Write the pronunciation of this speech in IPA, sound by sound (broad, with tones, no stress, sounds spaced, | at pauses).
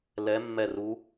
l ɛ˨˦ mː ɛ˧˩ r u˨˦